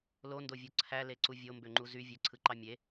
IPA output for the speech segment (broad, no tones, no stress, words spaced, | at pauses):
londovʲo ǀʰæleǀu vʲombøŋ͡ǃu zy vʲøǀʰɯǃɑ mʲe